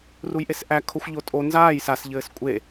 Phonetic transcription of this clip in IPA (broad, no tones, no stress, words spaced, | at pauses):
rujʔesʔæ kʰoxʷʎotʼo nzaːj sas ʎɘːskʷʼe